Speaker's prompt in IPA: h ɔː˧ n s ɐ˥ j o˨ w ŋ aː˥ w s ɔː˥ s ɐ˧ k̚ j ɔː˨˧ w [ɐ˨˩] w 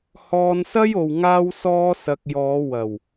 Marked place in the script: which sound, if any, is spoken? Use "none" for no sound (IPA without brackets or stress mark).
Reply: ɐ˨˩